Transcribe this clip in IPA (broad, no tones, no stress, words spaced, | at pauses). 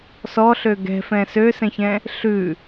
sɔɬø ɡɛ̤fɛ̃ søsɛ̃çɛ̃ | ɬʉ